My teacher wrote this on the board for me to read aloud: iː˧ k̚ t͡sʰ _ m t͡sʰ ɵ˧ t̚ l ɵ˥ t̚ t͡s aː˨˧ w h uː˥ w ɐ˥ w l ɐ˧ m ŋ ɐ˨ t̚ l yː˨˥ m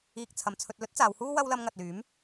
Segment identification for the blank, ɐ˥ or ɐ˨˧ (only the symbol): ɐ˨˧